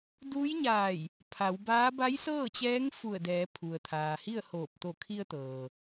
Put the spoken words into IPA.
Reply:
d uː˧˥ j ɲ aː˧˩ j | pʰ a˩˧ w b aː˧˥ b a˧˥ j s ɤː˥˨ t͡ɕ ɛː˧˥ ŋ f u˧˩ ə̯ d ɛː˩˧ pʰ u˩ ə̯ t̪ʰ aː˩ h i˥˨ ə̯ h oː˧˩ p̚ t̪ o˧˩ kʰ i˧ ə̯ t̪ ɤː˩

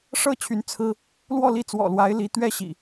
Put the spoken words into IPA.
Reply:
ʂ ɤ˥˨ t͡ɕʰ y˨˦ n t͡sʰ ɹ̩˦ | l w ɔ˥˨ l i˥˨ t͡s w ɔ̰˨˩ l w a˨˦ ɪ̯ l i˨˦ t̪ ɥ ɛ˥˨ ɕ ḭ˨˩

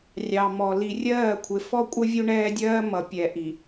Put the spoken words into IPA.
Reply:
rʲ ɑ˨ m ɔ˨ l i˨ rʲ ɜː˦˨ kʷʰ ɪ˨ f ɔ˦ kʷʼ ə˦ vʲ u˦ ɳ ɛː˦ dʲ ɜː˦ m ʌ˨ pʲ ɛ˨ ʔ i˨

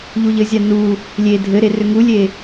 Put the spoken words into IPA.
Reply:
ʎ u ʎ ɘ zʲ a n u | lʲ e dʱ ɘ ɾ e r ʏ ŋ u lʲ e

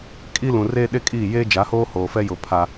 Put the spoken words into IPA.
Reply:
kʼ i˦ l ũ˨ r eː˦ ɗ e˦ kʼ iː˦˨ j eː˦ d͡ʒ a˨˦ h oː˦ h oː˨ f ɛ˦ j ʊ˨ pʰ a˦

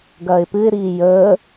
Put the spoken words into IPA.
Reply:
ɡ ɐː ɪ̯ p ɨ ɪ̯ ɾ iː j əː

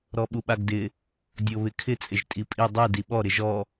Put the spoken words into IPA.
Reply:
ɾ ɔ ɓ u ɓ a ɡ d ɪ | dʲ o β ɪ kʰ ɪ t͡sʼ ɪ ʒ tʼ i pʼ i dˤ i d i ɓ ɔ ɾ ɪ ʒ ɔ

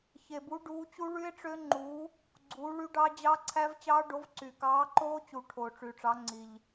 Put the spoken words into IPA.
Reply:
ç e˨˩ b u˨˥ ɖ uː˨˥ t͡ɕ u˦˥ ɭ y˦˥ e̯ ʈ͡ʂ ø˦˥ ŋ͡ǃ uː˨˥ | ɡ͡ǀ uː˨˥ ɭ y˦˥ ɖ ɑ˦˥ d͡ʑ ɑ˦˥ ǀʰ æ˦˥ v t͡ɕ ɑː˦˥ ɖ o˨˥ v ǀ y˨˩ k ɑː˨˥ ǃ oː˦˥ t͡ɕ u˨˩ ʈʰ oː˨˩ ʈ͡ʂ y˨˩ ʈ͡ʂ ɑ˨˥ ŋ͡ǀ i˨˩ ʎ

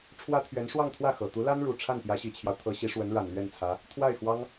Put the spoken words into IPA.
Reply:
ʈ͡ʂʰ w ä˥ t̪ʰ ɥ ɛ˧˥ n ʂ w ɑ˥˧ ŋ t̪ʰ w ä˥˩ x ɤ˨˩ t̪ u˧˥ l a˥ n ɻ u˨˩ ʈ͡ʂʰ a˥˩ n p j ä˧˥ ɕ i˨˩ t͡ɕʰ j ɑ˦ ʊ̯ t̪ʰ ɤ˧˥ ɕ i˧˥ ʂ w ə˧˥ n ɻ a˨˩ n l ɥ ɛ˥˩ n t͡sʰ ä˧˥ | t̪ʰ w a˥˩ ɪ̯ x w ɑ˥ ŋ

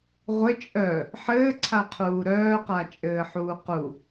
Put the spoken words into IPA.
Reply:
ʁʷ ɘ t͡ʃʼ œ | ħ ɘː ǀʰ a qʰ uː ɾ œː q a t͡ʃʼ ɘː ħ uː q u

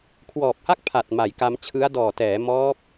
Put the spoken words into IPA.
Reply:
kʰ w ɔː˨˩ p̚ h a˥˩ k̚ pʰ a˨˩ t̚ m a˩˦ j k a˧ m t͡ɕʰ ɯ˦˥ a̯ d ɔː˨˩ t ɛː˩˦ m ɔː˦˥ p̚

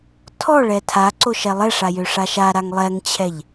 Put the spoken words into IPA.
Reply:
tʰ ɔ ɭ ɛ tʰ a ǀ o ʃ ɛ lˠ ɛ ʂ a j ø ʂ a ʃ a ɾ a ŋ lˠ ɛ ŋ t͡ɕʰ ɛ ʎ

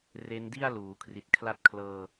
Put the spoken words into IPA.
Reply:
r e˦˥ n d i˥˩ a̯ l uː˩˦ kʰ r i˨˩ t̚ kʰ l a˦˥ t̚ kʰ l ɤː˧

